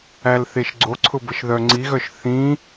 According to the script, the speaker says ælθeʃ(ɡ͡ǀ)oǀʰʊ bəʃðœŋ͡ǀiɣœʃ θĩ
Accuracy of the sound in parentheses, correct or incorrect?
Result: correct